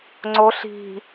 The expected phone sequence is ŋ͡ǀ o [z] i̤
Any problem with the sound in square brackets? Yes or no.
yes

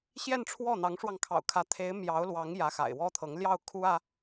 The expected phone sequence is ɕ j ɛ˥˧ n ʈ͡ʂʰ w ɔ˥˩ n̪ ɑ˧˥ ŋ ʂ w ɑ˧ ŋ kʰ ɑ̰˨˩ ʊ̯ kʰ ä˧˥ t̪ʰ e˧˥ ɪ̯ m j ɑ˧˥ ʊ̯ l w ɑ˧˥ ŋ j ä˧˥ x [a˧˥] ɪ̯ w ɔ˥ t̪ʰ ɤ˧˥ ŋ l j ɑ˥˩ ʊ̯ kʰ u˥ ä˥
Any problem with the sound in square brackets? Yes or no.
yes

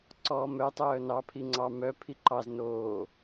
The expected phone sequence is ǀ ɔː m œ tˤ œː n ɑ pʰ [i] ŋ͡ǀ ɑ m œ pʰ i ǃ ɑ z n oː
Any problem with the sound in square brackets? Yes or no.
no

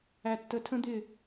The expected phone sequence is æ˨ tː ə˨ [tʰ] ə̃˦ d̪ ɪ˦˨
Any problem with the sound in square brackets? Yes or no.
no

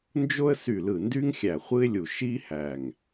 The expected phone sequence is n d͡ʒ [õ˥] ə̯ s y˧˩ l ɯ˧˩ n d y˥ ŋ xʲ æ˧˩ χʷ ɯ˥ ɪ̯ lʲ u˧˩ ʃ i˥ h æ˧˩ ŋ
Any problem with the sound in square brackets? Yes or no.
yes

